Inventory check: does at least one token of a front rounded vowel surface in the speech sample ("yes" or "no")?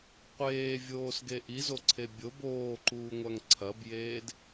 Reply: no